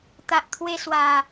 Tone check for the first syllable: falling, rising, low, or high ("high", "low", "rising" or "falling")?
low